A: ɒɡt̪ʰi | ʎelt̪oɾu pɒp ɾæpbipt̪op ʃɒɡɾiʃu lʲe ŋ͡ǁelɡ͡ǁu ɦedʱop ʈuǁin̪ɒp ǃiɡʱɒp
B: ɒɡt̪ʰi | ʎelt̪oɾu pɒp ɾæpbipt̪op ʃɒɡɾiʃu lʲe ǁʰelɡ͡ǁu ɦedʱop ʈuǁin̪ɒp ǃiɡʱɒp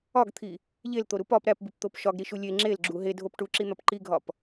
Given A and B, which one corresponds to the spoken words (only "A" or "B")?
A